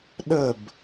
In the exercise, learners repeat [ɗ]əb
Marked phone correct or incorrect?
correct